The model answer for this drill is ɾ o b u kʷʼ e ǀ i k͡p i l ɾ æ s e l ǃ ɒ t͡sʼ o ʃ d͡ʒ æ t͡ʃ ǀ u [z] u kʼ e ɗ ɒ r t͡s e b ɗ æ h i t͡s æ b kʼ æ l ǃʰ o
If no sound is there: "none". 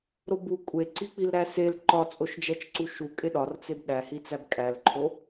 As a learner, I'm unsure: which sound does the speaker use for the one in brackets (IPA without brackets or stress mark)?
ʃ